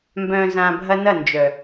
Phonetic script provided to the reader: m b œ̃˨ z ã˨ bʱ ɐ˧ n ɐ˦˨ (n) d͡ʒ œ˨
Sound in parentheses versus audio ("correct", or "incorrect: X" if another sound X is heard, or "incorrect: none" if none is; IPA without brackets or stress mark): correct